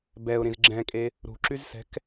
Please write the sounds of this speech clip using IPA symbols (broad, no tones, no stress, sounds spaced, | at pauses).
b ɛ ʊ̯ ɾ ĩ z ɡ͡ǁ ɛ̃ kʼ e | ɾ ṳ ǁ y z s ɛ̤ k